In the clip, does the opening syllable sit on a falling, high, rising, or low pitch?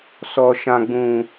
low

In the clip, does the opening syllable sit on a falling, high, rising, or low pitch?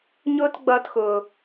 high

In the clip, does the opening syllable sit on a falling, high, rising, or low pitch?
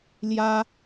high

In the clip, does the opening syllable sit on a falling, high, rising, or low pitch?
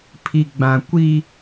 low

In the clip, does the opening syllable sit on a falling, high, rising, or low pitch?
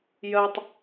low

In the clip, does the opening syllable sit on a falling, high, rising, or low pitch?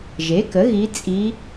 rising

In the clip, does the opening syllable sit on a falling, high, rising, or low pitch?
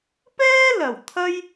high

